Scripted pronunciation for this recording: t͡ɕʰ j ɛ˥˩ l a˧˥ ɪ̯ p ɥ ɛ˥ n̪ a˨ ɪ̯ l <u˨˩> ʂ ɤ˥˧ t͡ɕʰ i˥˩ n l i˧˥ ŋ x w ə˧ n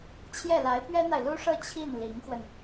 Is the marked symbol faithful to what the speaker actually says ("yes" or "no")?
no